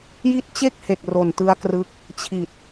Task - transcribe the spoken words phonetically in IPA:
ji˥˩t̚ t͡ɕe˥˩k̚he˨˩k̚ ro˨˩ntɯ˦˥a̯krɯ˦˥k̚ | t͡ɕʰi˨˩t̚

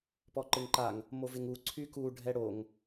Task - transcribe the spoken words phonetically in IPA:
pɔǃɪŋǃaŋ | movɪŋu ǀʰyku ɖʱɛɽoŋ

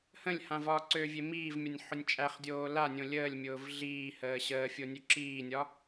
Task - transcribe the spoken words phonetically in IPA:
hə̃lʲhã vɒːǀøvʲe miːvmʲɒnʲ ħʊnʲt͡ʃʼæχdʲoː lanʲõ lʲəːlʲmʲʊːv ɮiːhəː ɕəːfʲo nʲøǁiːnʲɒ

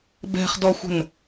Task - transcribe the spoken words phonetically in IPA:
bɛ̤χdɔxʷə̤n

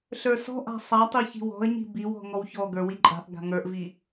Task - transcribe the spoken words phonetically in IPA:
ɬə˞sɔ̤ʔa̤ sˤatˤi çi̤wɔ̤ə̯ɲi̤ biwɔ̤ ŋɔwçɔɡə˞ wiǃʼa̤ʔɡa̤ ŋə˞ʔvi

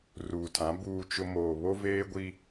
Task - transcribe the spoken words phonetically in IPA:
ruː˨tʰã˨˦ buː˦t͡ʃʊ˦ moː˨βo˦veː˦ ɡʷi˦

